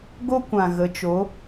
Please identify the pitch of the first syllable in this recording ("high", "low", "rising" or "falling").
high